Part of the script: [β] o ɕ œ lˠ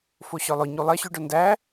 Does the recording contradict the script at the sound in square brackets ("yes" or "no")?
yes